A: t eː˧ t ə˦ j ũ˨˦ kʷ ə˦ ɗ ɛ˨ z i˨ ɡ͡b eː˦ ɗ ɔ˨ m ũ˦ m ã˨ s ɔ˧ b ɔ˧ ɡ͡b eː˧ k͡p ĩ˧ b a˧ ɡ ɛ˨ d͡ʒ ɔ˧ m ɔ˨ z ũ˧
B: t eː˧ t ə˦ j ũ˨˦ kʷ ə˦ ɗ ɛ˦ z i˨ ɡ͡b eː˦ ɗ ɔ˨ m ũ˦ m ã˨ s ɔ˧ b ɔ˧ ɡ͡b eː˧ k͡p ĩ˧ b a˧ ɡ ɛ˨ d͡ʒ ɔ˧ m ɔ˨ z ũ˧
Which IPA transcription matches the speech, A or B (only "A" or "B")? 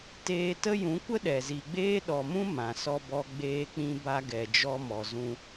A